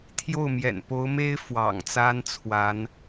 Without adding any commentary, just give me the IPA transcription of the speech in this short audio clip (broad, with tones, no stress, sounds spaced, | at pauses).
t̪ʰ j o˥˩ ʊ̯ m j ɛ̰˨˩ n p o˧˥ ʊ̯ m e˥ ɪ̯ f w ɑ̰˨˩ ŋ t͡s a˥ n t͡sʰ w a˧˥ n